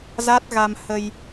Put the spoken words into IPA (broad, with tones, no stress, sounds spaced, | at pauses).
z a˦˥ t̚ ɣ a˧ m h ə˧ j